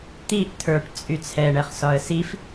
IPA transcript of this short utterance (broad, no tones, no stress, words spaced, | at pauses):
t̪iʔ tʰə˞ʈt͡sʼy t͡sʰɛɳɛχsɒə̯ sif